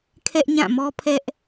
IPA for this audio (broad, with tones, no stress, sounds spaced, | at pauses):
kʰ ɛ˦ ʔ ɲ ã˦˨ m ɔ˦ pʰ ɛ˦ ʔ